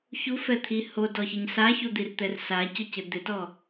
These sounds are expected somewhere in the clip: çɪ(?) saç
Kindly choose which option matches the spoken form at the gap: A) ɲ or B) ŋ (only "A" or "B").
A